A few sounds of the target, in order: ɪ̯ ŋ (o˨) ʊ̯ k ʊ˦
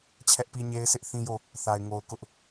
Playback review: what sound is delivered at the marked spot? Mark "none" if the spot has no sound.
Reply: o˨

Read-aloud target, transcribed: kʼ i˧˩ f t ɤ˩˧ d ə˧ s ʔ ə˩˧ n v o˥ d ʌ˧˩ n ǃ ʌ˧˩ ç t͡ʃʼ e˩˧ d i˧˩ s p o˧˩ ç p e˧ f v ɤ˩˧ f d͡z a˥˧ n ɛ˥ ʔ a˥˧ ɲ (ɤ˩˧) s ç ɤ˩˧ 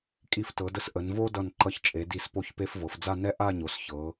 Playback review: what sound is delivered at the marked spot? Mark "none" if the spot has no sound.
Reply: o˩˧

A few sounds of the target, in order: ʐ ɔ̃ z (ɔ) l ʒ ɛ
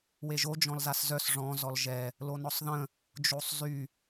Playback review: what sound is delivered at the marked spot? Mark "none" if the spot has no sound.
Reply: ɔ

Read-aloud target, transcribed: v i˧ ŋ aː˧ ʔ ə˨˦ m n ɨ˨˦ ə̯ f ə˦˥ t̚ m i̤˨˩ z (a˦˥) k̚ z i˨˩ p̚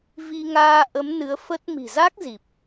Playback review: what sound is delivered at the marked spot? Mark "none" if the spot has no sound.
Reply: a˦˥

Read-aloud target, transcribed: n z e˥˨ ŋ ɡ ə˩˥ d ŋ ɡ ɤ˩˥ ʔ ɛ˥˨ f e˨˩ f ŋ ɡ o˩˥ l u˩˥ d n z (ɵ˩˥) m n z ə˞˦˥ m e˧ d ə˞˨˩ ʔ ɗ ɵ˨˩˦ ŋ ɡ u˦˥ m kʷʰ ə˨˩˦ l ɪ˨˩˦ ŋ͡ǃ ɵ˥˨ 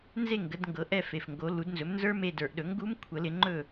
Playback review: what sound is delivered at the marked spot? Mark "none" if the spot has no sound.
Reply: ɵ˩˥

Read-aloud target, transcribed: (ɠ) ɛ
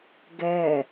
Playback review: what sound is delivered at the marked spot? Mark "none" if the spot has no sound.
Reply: ɡ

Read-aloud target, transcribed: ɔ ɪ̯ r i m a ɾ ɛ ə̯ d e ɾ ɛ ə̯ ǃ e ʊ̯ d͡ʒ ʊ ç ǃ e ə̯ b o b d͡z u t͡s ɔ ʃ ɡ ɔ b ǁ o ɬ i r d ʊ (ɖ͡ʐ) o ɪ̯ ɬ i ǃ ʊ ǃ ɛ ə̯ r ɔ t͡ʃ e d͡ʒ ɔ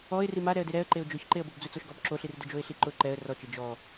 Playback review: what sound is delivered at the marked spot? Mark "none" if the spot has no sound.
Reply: d͡ʒ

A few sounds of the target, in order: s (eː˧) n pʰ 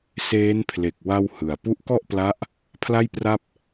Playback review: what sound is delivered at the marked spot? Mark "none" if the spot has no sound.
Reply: eː˦˥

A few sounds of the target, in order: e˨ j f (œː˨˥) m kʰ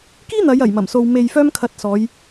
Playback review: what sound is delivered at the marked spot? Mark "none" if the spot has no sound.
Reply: œː˧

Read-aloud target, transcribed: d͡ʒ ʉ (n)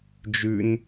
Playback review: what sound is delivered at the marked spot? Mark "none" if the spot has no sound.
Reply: n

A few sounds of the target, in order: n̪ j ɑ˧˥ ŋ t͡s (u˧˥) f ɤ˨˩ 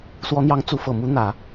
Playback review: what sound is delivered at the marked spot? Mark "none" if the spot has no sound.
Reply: u˧˥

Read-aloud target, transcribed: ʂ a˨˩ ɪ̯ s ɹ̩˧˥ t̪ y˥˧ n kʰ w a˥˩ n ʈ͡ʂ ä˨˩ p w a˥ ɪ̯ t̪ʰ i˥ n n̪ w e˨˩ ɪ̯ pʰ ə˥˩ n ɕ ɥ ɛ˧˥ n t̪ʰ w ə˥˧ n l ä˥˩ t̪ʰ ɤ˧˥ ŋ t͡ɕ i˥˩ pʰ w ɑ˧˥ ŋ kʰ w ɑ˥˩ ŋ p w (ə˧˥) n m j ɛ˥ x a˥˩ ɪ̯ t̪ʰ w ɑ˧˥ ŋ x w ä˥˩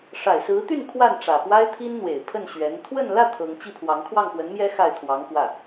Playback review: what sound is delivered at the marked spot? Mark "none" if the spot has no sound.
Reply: ə˧˥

